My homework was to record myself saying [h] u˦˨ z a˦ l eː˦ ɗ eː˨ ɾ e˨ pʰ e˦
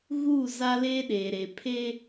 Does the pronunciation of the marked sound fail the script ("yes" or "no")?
yes